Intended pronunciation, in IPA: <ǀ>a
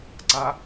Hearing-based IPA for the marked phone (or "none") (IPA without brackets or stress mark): ǀ